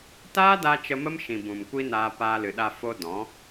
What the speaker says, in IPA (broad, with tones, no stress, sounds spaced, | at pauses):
t aː˦ d a˧ t͡ʃ ə˧ m ə˦ m ʃ ĩ˨ b ũ˨ m kʷ i˦ n aː˧ p aː˧ l ɨ˨ ɗ a˧ f o˧ d ɔ̃˨˦